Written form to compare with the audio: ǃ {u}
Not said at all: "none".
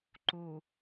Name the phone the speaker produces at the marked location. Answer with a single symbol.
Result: u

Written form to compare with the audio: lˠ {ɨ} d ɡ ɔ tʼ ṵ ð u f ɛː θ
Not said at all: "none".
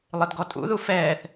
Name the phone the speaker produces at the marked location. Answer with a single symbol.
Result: ɨ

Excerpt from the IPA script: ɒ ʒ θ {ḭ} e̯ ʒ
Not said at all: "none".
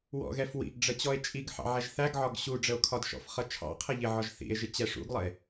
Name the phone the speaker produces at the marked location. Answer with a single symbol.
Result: ḭ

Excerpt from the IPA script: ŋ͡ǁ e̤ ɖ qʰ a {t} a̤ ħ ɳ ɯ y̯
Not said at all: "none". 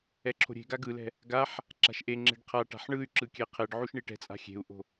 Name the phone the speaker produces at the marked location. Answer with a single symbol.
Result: ʈ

